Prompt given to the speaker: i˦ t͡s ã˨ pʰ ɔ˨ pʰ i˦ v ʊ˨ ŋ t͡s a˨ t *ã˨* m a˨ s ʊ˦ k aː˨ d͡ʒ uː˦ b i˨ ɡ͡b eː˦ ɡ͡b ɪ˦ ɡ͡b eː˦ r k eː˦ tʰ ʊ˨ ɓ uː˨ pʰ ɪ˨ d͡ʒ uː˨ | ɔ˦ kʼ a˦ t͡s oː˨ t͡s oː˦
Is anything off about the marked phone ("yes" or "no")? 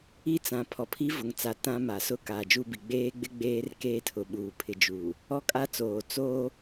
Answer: yes